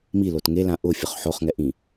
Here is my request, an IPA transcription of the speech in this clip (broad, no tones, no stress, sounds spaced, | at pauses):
m i l o t ŋ e l ã ʔ ʊ fʲ ʊ χ ħ o χ ŋ ɛ ʔ ĩ